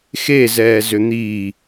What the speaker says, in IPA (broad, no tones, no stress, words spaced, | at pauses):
xezɛː zʏn̪i